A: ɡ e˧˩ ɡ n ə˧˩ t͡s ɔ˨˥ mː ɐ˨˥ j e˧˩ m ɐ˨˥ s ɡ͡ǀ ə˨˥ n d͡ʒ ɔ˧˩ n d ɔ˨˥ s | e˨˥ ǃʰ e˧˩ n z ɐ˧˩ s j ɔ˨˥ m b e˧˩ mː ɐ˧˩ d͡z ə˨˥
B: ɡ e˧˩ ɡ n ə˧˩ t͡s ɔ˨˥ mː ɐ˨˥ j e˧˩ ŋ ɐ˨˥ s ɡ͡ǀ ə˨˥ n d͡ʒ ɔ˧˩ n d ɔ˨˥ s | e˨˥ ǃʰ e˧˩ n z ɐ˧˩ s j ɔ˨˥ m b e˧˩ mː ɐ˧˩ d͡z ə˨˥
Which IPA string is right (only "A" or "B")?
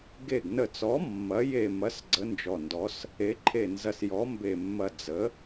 A